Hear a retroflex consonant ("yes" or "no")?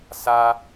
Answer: no